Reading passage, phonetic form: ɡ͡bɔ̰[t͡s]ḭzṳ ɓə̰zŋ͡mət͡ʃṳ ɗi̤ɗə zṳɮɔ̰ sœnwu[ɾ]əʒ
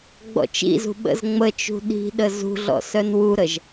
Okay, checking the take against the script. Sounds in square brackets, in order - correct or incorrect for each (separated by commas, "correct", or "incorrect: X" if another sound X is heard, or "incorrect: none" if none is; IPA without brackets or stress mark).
incorrect: t͡ʃ, correct